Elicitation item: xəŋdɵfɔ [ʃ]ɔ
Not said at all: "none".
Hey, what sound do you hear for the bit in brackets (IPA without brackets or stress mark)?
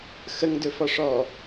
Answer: ʂ